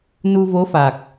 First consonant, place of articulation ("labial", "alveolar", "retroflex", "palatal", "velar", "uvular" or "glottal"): alveolar